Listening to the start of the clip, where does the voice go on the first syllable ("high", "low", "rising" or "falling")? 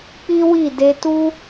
high